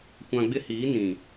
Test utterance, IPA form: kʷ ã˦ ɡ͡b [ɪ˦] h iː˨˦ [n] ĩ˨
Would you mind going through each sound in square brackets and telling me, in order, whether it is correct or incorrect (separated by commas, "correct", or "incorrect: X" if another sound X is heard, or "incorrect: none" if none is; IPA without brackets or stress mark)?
correct, correct